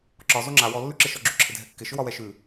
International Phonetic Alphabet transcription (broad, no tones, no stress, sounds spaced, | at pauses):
ǁ ɒ z o ŋ͡ǁ a w ɔ lː ʉ ǁ ɪ ʃ ɔ ɡ͡ǁ ʏ ǁʰ ɪ dʱ ɛ kː ɪ ʃ ʏ w ɒ w ɛ ʃ ʉ